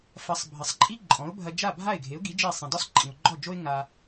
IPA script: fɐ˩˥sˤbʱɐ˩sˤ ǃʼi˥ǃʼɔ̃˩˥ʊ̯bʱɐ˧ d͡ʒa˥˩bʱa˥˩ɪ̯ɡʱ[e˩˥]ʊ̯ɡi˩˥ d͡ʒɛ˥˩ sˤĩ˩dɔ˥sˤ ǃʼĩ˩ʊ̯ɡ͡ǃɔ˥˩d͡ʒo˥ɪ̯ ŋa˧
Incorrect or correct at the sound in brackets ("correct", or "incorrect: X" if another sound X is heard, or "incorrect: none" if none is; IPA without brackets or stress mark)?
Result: correct